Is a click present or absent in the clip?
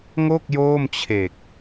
absent